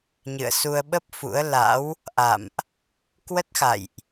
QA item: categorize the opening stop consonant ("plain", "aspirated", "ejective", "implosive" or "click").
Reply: implosive